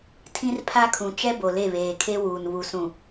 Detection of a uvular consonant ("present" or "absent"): absent